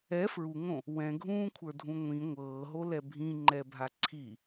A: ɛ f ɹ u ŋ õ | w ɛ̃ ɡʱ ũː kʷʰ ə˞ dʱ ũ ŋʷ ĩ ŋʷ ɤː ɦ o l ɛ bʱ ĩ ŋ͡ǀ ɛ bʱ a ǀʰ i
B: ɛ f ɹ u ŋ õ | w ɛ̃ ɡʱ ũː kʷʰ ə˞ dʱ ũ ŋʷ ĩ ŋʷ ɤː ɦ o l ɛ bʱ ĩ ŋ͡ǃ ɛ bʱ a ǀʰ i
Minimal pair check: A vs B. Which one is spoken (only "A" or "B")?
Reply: B